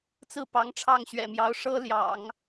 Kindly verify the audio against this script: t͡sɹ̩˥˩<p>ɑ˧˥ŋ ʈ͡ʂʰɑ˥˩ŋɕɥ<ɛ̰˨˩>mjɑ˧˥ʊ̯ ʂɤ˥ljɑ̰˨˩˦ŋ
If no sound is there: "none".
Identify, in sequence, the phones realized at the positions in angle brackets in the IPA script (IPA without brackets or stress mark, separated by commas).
p, ɛ̰˨˩